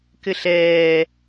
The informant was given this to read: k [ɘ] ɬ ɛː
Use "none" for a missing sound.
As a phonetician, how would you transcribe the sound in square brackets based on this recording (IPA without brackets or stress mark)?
ɘ